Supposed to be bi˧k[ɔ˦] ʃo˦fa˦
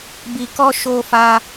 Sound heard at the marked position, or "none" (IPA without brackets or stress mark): ɔ˦